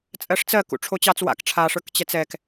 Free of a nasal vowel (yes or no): yes